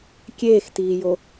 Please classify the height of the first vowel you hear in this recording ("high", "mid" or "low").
mid